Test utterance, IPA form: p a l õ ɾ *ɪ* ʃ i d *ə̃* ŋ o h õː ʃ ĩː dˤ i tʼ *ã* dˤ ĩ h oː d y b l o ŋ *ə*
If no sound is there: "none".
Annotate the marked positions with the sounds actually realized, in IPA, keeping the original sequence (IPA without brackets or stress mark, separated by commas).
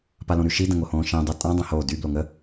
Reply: y, ə̃, ã, ə